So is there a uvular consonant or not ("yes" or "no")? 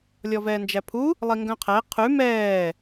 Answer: yes